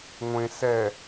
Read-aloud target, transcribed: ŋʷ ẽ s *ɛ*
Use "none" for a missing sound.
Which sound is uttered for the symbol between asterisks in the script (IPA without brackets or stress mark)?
ɛ